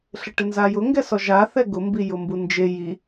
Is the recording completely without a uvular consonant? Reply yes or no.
yes